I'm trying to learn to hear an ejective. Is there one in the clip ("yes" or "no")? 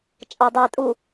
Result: yes